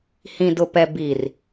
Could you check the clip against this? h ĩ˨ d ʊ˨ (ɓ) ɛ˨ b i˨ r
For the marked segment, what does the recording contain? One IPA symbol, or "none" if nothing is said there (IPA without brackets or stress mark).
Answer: p